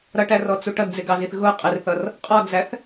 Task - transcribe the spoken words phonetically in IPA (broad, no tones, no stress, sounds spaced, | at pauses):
ɾ ʌ ʈ æ r ɔ t͡s u ʈ ʌ d d͡z ɪ ɡ ɑ z i θ ɣ ʊ qʼ ɪ r θ ʌ r | qʼ ɔ d͡z æ θ